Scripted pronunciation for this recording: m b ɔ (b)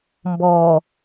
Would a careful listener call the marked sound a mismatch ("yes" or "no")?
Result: yes